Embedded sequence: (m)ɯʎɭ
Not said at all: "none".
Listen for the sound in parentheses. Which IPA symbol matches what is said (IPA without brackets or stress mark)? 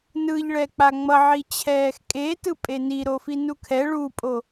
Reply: n